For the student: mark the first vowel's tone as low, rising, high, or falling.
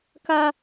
high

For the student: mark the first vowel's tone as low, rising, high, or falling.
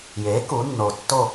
rising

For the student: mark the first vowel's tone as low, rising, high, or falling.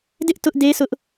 high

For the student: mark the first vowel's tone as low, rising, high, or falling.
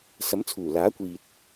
rising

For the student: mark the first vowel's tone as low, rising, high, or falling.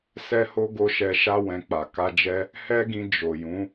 high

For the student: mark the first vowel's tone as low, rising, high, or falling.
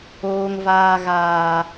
low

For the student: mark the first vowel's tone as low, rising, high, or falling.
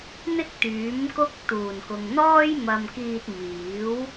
high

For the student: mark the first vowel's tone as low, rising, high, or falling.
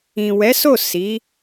low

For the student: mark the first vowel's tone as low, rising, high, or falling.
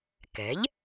rising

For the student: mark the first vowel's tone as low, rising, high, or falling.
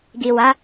low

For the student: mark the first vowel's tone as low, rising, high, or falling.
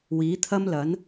rising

